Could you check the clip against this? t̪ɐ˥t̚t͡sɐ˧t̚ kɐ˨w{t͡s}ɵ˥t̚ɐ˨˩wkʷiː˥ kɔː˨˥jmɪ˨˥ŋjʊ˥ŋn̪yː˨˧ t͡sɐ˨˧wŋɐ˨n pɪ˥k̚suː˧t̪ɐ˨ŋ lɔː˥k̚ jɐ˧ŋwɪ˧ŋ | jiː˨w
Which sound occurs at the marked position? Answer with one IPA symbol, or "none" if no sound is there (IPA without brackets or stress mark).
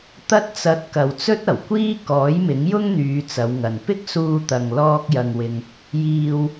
t͡s